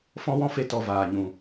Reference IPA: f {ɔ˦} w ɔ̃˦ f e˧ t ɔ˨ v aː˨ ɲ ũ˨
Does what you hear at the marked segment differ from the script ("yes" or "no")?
yes